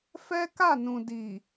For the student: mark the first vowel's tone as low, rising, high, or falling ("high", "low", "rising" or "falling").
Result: high